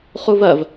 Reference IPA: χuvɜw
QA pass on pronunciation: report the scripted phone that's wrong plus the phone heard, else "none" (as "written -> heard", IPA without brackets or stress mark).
w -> v